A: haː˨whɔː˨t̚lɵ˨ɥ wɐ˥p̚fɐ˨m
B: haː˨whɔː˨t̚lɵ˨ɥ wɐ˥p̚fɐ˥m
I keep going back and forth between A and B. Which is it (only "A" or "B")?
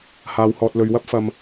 A